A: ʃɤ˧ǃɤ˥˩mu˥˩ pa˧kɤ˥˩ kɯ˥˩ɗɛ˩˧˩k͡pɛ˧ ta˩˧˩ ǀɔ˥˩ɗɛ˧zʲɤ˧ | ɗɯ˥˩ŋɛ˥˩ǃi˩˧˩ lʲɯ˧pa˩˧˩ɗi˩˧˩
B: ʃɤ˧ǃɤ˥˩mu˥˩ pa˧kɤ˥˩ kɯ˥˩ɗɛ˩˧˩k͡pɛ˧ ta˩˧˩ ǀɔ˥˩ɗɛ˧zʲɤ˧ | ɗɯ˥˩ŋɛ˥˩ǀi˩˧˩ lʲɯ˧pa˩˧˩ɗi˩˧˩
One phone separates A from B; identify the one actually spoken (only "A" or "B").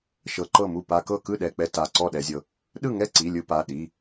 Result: B